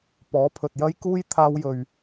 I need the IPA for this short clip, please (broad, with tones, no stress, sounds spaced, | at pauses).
p ɔː˨˥ pʰ ɵ˨ t̚ j ɐ˥ j k uː˥ j t̪ʰ aː˧ w j ɵ˨ ɥ